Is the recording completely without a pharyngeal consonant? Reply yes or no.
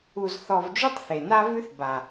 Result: yes